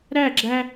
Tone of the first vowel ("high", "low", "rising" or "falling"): falling